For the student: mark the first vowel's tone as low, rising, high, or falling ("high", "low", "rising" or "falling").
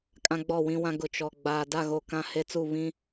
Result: high